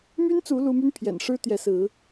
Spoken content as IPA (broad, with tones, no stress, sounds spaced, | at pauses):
m y˦ n t͡s u˨˦ l u˦ m y˦ n pʰ j ɛ̰˨˩ n ʂ ɻ̩˦ t̪ j ɛ˨˦ s ɹ̩˨˦